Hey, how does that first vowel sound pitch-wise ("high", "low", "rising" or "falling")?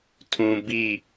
low